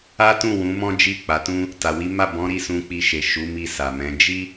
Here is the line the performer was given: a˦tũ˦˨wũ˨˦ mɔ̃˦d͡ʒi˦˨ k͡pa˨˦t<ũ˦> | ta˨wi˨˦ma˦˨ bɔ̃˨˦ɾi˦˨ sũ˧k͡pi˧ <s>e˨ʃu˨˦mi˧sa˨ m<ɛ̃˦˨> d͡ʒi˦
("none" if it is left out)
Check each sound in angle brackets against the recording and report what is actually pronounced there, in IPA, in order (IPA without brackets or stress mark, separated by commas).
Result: ũ˦, ʃ, ɛ̃˨˦